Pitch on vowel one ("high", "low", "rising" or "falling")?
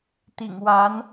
low